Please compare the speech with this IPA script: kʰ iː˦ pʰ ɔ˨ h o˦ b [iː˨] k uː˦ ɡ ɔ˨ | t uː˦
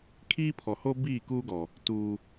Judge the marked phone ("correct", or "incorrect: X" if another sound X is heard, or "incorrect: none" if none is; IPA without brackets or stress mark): incorrect: iː˦˨